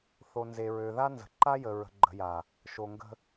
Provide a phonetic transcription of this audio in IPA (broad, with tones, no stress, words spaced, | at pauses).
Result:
θo˨nze˨ɹø˨ða˦ nzə̤˨ ǃa˦jə˨ ɹə̤˨ ɡ͡ǃə̤˨ja˨ | ʃo˨ŋɡə̤˦